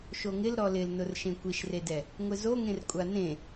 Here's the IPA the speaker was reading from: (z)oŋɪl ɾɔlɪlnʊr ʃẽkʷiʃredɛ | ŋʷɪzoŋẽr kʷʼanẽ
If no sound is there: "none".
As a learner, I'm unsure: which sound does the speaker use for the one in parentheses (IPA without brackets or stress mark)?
ʃ